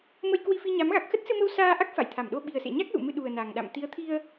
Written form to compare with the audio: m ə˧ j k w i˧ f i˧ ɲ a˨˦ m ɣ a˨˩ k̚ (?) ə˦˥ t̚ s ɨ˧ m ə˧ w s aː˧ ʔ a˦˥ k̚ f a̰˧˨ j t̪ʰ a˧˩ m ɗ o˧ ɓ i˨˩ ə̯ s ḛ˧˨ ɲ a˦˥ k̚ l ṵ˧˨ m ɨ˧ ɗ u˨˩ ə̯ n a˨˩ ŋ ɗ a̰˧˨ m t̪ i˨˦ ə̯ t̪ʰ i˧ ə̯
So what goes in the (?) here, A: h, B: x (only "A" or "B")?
B